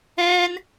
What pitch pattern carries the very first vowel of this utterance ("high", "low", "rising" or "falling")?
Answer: high